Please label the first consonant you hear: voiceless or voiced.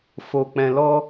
voiceless